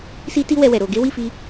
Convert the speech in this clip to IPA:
s i˦ t i˦ w ɛ˧ w ɛ˨ ɾ o˧ ɡ e˦ w i˦˨ f i˧

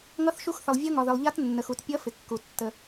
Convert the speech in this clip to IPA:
ŋ ʌ˦˥ θ ʃ u˦˥ x θ ə˨ lˠ vʲ ʌ˦˥ ŋ ɒ˨ ð ɪ˨ lˠ ʎ a˦˥ t nː ə˨ x u˨ t pʲ ʌ˦˥ f ɪ˨ kː u˨ tː ə˨

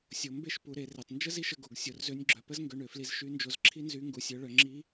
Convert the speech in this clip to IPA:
sʲ o˩˧ m b e˥ ʃ p u˩˧ ɾ e˩˧ r e˩ tˤ n d͡ʒ ə˥ z i˥ ʃ ə˧ ɡ o˩ ɡ sʲ o˩ r z ø˧˥ nʲ ɡ͡ǁ œ˩˧ p ə˥ z ŋ ɡ ø˧ ɳ ø˩˧ f l i˧ z ʃ y˧˥ n d͡ʒ o˧ z ǁʰ i˥ n z y˧˥ ŋ ɡ u˩˧ sʲ œ˩˧ ɭ œ˩˧ ŋ͡ǁ i˧˥

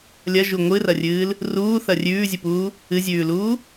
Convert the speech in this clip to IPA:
lʲ ɐ ʒ u ŋʷ ɨ r ɐ rʲ ɨː l | r uː θ ɐ rʲ ʉː zʲ ɨ p uː | ɨ zʲ ʉː l uː

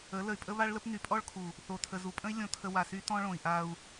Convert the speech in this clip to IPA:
ə˨˦ l ə˨ y̯ pʼ ə˦ β a˦ ɭ l ə˦ p n y˨˦ pʼ ɔ˦ ɭ kʰ u˨ | θ o˨ tʰ ə˨ z u˨ pʼ ə̃˦ i̯ lʲ õ˨ tʰ ə˨ w a˨ s y˦ t ɔ̃˦ ɭ õ˨ i̯ ʔ a˦ u̯

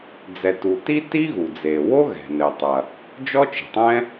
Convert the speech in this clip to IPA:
d͡z ɛ˩ t u˩ t i˥ t i˥ ɣ u˩ d͡z e˩ w o˥ ɣ ɛ̤˩ n ɘ˩ tˤ ɐ˩ | d͡ʒ ɔ˥ t͡ʃ i̤˩ tˤ ɛ̃˥

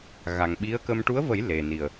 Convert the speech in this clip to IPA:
ɣ a˨˩ ŋ ɓ i˧˥ ə̯ k ə˧ m ʈ u˧˥ ə̯ v ə˨˩˦ j l e˨˩ n i˨˩ ə̯

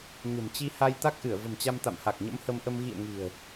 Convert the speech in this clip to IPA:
ɲ ə̤˨˩ m t͡ɕ i˧ h a˧ j t̪ a˦˥ k̚ ʔ ɨ˧˩ ə̯ v ə̤˨˩ m t͡ɕ a˧ m t̪ a̰˧˨ m h a˨˩ k̚ ɲ ə̰˧˥ m h ə˧ m ʔ ə˧ m ɣ ḭ˧˨ ə̯ ŋ i̤˨˩ ə̯

